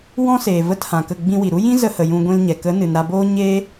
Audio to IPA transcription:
w ɔ̃˦ s eː˨ v ə˧ t h ã˨ k ə˦˨ ɡ͡b ĩ˧ w i˨ ɾ u˦ j ĩ˦ z ə˧ h ə˨ j ũ˧ ɡʷ ĩ˧ l ɲ ɛ˨ k ə˨˦ n ɨ˨ n ɾ a˧ b oː˦ ɲ eː˦

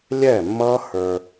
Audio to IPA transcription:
lʲ ɛ˦˨ mː ʌː˦ h ə˞˧

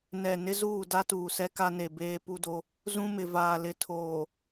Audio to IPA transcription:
n ɛ˨ n ɪ˦ z uː˦˨ d a˦ t uː˨ s ɛ˦ k a˦ n e˨ b eː˦ p u˦ d o˦ | z ũ˦ m ɪ˨ v aː˨ l ɪ˨ tʰ oː˨

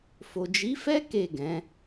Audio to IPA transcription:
f o˨ d͡ʒ i˨˦ f ɛ˦ k e˦˨ ɡ ɛ̃˨˦

